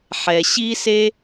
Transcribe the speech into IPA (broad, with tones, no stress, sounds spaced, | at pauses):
ħ ɛ˨ ɕ i˦ s e˦